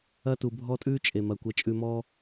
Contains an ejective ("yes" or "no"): yes